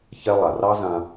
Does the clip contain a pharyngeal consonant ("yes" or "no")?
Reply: no